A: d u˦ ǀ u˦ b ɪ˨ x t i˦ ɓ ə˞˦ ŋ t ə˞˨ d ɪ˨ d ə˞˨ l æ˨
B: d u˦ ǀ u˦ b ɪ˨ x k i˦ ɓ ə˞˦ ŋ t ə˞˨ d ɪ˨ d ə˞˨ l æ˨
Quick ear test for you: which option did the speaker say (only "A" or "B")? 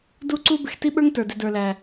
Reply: A